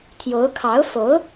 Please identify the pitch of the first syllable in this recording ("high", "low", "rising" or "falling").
rising